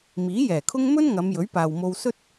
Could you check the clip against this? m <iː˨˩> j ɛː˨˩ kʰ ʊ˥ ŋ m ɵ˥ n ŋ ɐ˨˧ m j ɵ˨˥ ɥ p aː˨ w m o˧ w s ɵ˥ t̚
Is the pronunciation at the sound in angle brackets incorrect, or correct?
incorrect